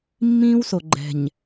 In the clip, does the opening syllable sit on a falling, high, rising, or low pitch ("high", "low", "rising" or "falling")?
high